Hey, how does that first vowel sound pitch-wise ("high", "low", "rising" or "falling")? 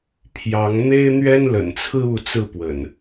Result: rising